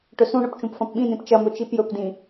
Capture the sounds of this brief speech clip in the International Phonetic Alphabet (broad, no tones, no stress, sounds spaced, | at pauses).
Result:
ʈ ɵ s ũ ɳ ɵ p t͡ʃ ũ p f ɐ̃ p ɓ ĩ n ĩ p t͡ʃ ɐ m ɵ t͡ʃ i p j ɵ p d ĩ